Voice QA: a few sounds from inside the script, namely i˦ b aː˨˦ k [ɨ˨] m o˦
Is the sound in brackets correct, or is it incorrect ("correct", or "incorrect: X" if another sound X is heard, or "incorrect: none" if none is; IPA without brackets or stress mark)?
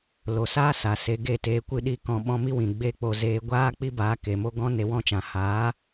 incorrect: e˨